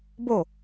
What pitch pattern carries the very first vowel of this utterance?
falling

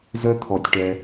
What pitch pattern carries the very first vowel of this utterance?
high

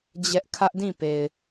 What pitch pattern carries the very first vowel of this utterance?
high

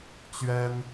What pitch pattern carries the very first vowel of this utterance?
high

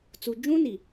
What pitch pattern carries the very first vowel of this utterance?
low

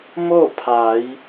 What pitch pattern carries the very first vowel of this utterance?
falling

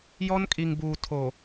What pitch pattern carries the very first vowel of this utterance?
high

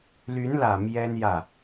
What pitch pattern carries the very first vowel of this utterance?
rising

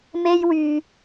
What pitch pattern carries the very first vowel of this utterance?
high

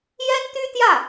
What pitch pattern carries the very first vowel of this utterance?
high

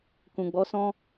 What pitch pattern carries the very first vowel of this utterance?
low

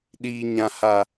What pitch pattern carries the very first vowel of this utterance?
high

